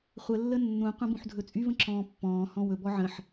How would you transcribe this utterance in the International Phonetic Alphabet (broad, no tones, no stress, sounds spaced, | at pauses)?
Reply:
χʷ ə lː ə nː ũ qʷ ə̃ b ũ ħ dʱ ɵ t͡sʼ y v ə̃ ǁ ɔ̃ː pː ɔ̃ː h ɔ̃ w ɵ b ɔ ʕ ə̃ ħ